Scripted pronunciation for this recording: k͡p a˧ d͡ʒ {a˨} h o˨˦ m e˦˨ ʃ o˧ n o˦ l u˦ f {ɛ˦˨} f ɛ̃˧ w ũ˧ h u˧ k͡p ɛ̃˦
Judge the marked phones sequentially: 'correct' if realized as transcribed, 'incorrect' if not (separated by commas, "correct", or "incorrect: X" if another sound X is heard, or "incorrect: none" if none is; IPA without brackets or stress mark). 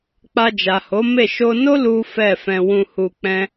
correct, correct